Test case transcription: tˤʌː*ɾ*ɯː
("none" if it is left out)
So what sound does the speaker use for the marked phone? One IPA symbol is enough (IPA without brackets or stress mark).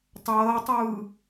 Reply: tˤ